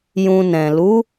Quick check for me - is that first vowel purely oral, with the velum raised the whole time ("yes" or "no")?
no